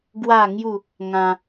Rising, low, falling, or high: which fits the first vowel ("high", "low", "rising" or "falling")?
falling